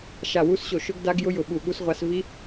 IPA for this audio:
ʃ a˦˨ w u˦˥ s ɕ o˦˨ ʃ ʊ˦˥ ɡ d a˦˥ ɡ j ʊ˦˥ j ʊ˦˨ ɓ u˦˨ ɠ u˦˥ s ʁʷ a˦˥ s v i˦˥

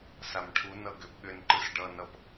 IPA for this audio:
s a m ʈʰ u n ʌ ɡ ʏ p ɠ ʏ n ǃ ɯ s ɖ ʌ n ʌ p

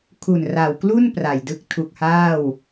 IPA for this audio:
kʰ u˨˩ n r a˨˩ w k l u˥˩ n p r a˨˩ j d ɯ˦˥ k̚ tʰ u˨˩ k̚ h aː˥˩ w

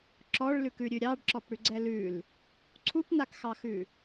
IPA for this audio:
ǁ ɔ ɭ l ʉ k ʉ ɾʲ ʉ ɾʲ ɑ ɖ ǁ ɔ p ɽ ʉ ɡ͡ǀ ɛ l ʉ l | ǀʰ u p n a k x ɑ x ʉ

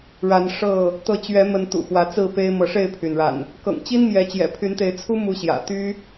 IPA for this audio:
ɻ a˨˦ n ʂ ɤ˥˨ | t̪ ɤ˨˦ t͡ɕ ɥ ɛ˨˦ m ə˨˦ n t̪ ṵ˨˩ x w ä˨˦ t͡s ɹ̩˥˨ p e˦ ɪ̯ m ɤ˨˦ ʂ e˥˨ ɪ̯ pʰ y˩ n ɻ a̰˨˩ n | k ɤ̰˨˩ ŋ t͡ɕ i˦ n m j ɛ˨˦ t͡ɕ j ɛ̰˨˩ pʰ y˨˦ n t̪ e˨˦ ɪ̯ t͡sʰ u˦ m u˦ ɕ j ä̰˨˩ t̪ y˦

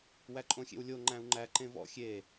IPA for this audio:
w æ ǃʼ õ xʲ ḛ w lʲ o ŋ͡ǃ æ̃ u̯ ŋ͡ǃ æ ǃ ẽ v ɔ̰ xʲ e

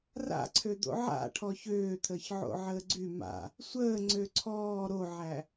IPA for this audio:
r a̰ ǀʰ ø d̪ o̰ ʕ a̰ ʈʰ ɔ ç øː t̪ʰ əː ç ʕ o̰ ʕ əː ɡ͡ǀ y m a̰ | sʷ əː ŋ͡ǀ ø ǀʰ ɔː ɾ o ʕ æ

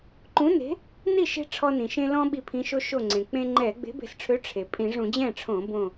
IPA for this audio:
ǃ ũ˨˥ n e̤˨˥ | n i˥˨ ʃ e̤˦ ʈ͡ʂʰ ɔ˦ n ĩ˩ ʃ ẽ˦ l ɔ̃˦ ɓ i˧˩ pʰ ĩ˨˥ ʃ o˦ ʃ o˥˨ ŋ͡ǀ ẽ˩ k͡p ẽ˦ ŋ͡ǃ ɛ˧˩˧ ɡ͡b e̤˨˥ b e̤˧˩ s ʈ͡ʂʰ ø˨˥ ʈ͡ʂʰ e˩ pʼ ĩ˧˩˧ ʐ ũ˧˩˧ d͡ʑ ɛ̃˥˨ ʈ͡ʂʰ õ˧˩˧ b õ˧˩

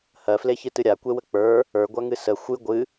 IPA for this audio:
h ɜ f l e ç ɨ t ɨ ɾʲ a kʷ e w ə k͡p ə˞ | ə˞ ɡʷ a ŋ ɨ s ə xʷ ɨ ɡʷ ɨ

